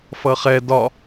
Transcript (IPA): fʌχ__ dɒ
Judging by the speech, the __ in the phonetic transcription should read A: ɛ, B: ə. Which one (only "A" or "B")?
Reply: A